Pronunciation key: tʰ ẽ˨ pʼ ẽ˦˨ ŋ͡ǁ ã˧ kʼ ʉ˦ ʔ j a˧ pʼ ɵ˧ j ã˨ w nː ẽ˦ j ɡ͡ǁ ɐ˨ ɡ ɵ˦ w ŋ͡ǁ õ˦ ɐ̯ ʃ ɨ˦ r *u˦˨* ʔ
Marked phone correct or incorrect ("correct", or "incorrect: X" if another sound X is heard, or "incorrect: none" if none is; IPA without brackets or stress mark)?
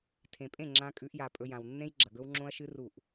correct